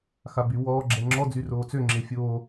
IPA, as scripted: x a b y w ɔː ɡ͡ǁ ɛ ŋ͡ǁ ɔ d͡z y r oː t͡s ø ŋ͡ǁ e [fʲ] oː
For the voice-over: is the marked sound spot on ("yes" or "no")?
yes